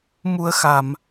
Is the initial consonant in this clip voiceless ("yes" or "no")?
no